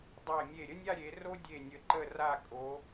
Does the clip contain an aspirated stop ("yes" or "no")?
no